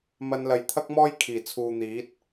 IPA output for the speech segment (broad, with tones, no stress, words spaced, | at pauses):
mɐ˧n lɐ˨jt̪ʰɐ˥k̚mɔː˥j kʰiː˨˩t͡sʰuː˨n̪iː˨˥t̚